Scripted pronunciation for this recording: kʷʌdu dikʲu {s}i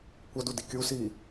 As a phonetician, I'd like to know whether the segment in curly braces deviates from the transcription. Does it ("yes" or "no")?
no